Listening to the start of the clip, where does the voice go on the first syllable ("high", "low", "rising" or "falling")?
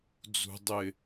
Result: low